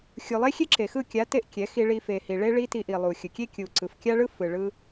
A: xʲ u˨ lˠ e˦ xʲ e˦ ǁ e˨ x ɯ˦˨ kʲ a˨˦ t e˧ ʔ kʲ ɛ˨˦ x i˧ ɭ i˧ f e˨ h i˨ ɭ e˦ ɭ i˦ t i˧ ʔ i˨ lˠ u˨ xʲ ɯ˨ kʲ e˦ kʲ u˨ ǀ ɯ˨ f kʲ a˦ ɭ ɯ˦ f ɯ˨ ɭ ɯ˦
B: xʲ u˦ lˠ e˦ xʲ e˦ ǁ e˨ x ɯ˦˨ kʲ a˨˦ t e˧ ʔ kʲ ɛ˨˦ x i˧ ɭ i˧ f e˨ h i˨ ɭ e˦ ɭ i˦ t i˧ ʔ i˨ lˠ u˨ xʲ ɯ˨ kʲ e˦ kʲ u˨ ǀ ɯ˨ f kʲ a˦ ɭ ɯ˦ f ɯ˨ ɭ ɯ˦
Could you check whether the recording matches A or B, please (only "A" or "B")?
A